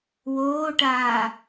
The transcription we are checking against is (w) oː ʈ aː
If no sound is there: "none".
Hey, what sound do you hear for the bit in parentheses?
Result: w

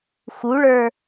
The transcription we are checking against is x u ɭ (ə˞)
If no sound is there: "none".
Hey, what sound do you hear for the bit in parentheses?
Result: ə˞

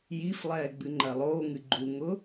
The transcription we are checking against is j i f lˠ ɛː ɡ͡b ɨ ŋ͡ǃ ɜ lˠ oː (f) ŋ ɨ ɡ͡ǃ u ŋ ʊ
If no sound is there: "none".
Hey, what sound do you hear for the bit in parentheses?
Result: none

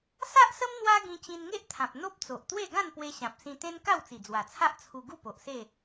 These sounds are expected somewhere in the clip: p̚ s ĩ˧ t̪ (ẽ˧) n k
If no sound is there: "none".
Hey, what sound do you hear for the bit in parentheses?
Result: ẽ˦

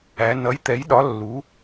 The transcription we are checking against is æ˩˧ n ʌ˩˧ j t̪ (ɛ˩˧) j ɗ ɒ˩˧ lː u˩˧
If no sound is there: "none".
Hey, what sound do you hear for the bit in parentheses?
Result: ɛ˩˧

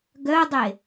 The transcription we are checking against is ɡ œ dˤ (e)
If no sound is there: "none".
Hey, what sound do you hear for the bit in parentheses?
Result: e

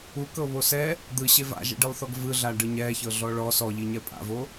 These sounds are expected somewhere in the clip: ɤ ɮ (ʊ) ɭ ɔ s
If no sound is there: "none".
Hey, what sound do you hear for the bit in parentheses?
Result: ɔ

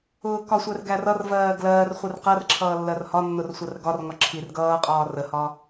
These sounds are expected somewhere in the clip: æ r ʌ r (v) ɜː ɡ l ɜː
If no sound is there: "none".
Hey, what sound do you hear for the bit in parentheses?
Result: v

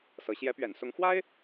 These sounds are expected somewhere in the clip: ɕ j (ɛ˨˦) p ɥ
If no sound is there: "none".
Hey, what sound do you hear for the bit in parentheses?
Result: ɛ˨˦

